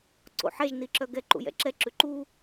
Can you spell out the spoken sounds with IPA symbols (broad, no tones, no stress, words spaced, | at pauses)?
ǀo̰ħɛʒ niǁœɡɛ ǃṵjɛ̰ǁɛ ǁʉǃu